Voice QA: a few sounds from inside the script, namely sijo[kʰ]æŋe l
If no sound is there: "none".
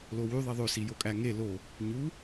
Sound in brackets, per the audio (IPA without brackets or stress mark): kʼ